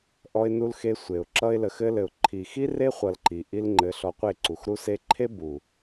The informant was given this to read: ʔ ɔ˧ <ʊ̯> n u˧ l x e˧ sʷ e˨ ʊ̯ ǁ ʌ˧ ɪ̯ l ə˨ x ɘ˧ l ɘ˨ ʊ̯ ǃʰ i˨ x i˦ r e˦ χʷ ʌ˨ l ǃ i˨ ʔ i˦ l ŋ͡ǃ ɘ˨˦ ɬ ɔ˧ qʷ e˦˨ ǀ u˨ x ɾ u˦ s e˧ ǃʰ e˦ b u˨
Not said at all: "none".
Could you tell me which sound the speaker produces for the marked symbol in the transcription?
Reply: ɪ̯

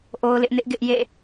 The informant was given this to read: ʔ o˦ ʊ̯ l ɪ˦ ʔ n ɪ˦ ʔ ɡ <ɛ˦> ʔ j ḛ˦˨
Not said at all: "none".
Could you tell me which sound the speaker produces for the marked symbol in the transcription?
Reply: ɪ˦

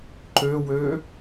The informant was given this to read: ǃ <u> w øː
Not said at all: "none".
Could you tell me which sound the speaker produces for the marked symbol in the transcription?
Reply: ø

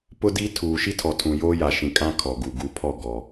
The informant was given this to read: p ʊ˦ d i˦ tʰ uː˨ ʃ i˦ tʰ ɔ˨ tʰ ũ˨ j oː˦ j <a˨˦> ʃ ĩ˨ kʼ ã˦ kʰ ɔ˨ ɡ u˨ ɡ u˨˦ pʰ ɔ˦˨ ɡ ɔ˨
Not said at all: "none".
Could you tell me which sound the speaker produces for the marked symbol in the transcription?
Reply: a˨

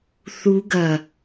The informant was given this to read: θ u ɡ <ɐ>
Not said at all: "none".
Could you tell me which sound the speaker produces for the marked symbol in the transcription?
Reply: ɐ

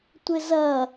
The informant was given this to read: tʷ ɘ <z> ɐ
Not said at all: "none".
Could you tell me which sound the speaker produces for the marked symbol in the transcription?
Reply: z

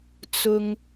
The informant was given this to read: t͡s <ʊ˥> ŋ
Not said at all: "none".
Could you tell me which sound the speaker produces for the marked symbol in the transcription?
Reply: ʊ˨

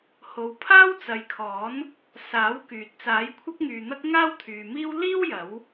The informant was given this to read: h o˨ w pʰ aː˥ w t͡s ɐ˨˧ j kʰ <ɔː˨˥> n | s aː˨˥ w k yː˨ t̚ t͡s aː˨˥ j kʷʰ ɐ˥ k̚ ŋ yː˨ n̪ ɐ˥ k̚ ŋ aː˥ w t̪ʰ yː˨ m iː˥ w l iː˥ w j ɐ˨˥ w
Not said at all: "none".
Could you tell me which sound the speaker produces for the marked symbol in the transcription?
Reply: ɔː˨˥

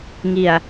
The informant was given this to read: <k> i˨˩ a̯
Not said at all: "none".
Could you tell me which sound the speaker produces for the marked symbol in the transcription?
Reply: ŋ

